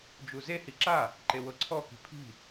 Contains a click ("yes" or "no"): yes